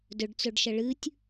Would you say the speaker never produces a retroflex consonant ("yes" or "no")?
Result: no